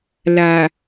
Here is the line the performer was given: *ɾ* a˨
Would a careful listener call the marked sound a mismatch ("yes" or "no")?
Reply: yes